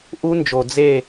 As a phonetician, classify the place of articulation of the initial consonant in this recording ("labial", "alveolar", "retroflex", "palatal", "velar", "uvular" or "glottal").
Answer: glottal